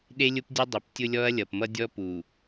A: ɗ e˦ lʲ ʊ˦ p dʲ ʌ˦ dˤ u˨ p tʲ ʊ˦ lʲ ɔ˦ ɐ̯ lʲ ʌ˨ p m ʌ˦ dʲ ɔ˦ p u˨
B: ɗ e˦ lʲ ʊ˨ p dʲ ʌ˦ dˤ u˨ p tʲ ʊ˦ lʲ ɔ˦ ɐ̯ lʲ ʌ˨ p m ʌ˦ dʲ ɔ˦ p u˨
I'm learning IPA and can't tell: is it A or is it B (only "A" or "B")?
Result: A